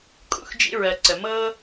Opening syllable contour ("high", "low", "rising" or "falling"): high